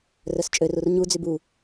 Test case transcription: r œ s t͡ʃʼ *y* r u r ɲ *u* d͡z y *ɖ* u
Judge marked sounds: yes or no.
no, yes, no

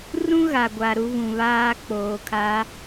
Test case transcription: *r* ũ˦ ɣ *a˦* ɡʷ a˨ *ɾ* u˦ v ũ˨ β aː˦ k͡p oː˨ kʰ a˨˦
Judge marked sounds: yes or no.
yes, no, yes

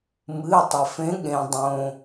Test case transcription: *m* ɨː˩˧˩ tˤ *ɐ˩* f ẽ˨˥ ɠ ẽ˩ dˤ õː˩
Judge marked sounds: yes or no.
yes, yes

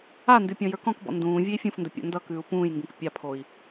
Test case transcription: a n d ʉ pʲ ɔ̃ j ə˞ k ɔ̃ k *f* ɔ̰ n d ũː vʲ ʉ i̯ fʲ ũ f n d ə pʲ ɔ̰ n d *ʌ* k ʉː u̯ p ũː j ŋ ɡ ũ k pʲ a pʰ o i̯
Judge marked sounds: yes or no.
no, yes

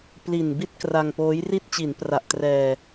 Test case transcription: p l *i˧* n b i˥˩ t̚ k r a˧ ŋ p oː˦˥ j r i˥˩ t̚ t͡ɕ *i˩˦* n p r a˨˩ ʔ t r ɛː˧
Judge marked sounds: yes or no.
no, yes

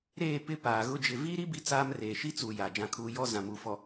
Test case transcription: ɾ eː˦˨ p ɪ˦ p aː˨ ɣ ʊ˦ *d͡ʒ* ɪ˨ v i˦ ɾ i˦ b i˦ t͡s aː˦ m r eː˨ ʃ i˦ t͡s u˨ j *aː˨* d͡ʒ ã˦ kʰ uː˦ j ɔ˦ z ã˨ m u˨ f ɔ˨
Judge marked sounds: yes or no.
yes, yes

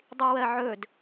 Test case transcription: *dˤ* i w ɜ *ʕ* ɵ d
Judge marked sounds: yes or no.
yes, yes

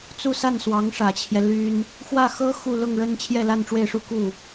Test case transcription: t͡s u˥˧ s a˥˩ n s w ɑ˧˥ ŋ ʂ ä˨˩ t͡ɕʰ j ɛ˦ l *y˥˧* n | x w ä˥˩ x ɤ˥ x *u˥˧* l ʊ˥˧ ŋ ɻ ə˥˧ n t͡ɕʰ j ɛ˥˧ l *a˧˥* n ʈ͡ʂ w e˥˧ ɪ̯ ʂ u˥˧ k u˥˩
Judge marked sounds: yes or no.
no, yes, no

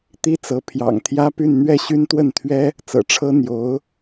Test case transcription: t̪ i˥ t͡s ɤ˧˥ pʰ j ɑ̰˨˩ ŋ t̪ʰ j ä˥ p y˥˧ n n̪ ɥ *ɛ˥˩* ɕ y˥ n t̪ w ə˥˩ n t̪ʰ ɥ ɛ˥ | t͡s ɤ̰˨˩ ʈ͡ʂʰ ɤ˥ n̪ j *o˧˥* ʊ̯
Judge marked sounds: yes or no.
yes, yes

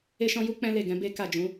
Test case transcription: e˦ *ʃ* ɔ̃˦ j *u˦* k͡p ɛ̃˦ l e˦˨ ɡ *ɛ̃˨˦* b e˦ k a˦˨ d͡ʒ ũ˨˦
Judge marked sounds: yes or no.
yes, yes, yes

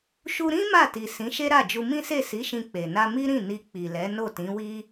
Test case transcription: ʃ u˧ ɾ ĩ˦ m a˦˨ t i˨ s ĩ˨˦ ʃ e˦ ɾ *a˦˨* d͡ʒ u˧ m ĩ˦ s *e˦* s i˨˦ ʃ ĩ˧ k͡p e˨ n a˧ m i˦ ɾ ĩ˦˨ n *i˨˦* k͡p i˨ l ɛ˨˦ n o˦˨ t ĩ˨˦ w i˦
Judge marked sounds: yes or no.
yes, no, no

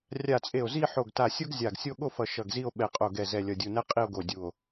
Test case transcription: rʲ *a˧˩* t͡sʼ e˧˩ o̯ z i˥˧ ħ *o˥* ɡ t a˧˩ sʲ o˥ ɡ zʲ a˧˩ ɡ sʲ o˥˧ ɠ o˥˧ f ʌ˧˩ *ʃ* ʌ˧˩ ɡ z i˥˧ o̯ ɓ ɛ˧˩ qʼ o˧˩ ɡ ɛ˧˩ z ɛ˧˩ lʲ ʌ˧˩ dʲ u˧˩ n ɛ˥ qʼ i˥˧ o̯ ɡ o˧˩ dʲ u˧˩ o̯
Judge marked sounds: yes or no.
yes, no, yes

